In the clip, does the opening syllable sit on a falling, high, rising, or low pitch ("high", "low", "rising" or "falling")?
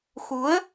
rising